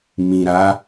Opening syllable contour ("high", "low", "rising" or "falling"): low